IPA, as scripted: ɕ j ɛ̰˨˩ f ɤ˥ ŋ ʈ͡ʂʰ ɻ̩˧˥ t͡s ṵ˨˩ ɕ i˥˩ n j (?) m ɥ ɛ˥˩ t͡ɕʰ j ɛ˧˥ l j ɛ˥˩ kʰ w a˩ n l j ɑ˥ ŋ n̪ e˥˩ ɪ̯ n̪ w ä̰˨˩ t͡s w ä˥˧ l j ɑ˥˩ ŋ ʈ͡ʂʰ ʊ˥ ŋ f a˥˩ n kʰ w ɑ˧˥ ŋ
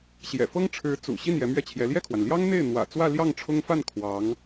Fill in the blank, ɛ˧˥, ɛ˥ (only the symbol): ɛ˧˥